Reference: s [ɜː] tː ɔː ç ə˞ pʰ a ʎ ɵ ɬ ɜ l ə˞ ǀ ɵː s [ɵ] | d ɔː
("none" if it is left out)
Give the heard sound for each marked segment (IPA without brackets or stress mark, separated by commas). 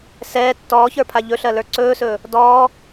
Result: ɛː, ɵː